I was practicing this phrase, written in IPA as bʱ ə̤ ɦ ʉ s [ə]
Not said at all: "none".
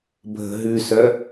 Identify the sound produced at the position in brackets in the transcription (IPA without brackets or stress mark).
œ